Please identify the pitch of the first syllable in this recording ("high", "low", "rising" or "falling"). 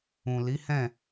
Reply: low